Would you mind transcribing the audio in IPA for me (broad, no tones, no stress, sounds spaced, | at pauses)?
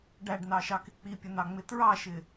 ɖ æ ɖ n ɑ ʃ ɑ k ɪ k͡p i pʲ ə n ɑ ŋ͡m ɪ t ɹ ɑ ʃ ɪ